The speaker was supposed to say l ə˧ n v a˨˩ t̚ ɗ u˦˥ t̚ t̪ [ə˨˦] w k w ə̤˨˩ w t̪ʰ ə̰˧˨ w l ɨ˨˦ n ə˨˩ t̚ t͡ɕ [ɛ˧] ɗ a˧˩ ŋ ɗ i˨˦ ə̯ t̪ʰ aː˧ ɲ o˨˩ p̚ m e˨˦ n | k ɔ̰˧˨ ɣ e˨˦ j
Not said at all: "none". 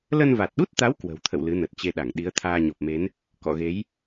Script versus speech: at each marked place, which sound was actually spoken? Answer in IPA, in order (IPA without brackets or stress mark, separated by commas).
a˨˦, e˧